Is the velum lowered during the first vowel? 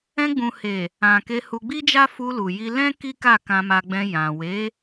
yes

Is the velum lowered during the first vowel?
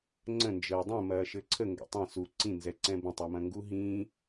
yes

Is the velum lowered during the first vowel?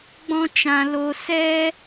yes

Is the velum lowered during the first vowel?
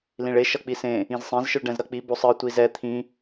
yes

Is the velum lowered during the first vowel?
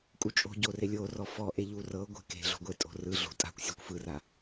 no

